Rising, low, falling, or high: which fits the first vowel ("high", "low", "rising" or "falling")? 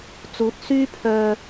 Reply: rising